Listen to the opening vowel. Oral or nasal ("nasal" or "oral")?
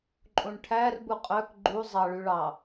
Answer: nasal